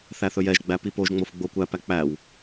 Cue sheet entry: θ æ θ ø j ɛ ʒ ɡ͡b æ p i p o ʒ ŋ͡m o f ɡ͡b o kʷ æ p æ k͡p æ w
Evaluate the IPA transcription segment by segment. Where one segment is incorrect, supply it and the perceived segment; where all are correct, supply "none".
ø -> ɵ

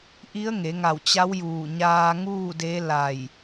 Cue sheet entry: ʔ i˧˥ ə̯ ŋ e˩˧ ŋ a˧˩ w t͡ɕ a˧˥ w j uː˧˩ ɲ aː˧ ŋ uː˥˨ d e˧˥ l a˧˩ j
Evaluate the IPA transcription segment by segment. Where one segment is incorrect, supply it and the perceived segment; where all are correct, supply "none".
none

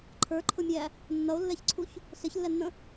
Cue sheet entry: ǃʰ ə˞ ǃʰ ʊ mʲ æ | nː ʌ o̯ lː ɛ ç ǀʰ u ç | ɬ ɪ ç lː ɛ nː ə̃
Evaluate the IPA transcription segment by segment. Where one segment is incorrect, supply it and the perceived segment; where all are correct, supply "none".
none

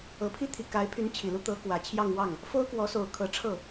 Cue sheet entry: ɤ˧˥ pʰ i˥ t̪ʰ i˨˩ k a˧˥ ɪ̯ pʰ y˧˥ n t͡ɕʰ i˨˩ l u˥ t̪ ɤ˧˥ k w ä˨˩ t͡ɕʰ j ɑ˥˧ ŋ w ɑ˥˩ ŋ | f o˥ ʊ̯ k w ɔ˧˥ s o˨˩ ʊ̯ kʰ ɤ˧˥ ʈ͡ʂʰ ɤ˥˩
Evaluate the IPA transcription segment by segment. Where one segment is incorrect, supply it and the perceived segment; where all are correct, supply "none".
none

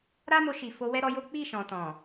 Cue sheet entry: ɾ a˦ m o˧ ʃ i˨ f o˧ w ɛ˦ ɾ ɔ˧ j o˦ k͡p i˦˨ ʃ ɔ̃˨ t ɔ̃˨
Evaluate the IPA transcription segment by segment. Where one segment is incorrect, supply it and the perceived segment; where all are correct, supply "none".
none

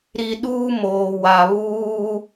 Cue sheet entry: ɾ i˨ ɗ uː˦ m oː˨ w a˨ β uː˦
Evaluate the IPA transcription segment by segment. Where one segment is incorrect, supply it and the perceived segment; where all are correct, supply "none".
none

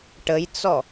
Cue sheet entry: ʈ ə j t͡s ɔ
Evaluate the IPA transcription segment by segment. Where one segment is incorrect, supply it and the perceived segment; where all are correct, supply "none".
none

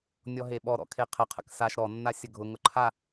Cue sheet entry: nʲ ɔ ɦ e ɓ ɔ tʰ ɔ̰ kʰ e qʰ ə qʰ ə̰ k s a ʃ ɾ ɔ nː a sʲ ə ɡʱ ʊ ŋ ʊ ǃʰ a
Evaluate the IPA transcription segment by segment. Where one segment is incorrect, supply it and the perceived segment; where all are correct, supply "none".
tʰ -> ɾ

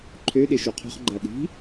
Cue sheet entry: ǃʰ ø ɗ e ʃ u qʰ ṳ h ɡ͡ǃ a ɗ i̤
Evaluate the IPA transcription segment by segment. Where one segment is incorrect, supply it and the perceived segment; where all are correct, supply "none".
h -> χ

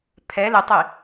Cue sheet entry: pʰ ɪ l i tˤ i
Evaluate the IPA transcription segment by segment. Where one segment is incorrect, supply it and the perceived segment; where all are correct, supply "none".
ɪ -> ɛ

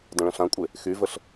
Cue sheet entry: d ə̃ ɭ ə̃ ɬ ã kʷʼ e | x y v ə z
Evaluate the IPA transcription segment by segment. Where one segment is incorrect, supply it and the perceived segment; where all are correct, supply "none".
z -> ɬ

